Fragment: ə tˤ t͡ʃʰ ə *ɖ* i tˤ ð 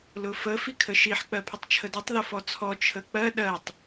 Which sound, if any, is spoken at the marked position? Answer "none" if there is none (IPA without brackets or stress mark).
d